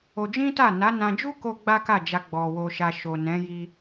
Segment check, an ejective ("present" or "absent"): absent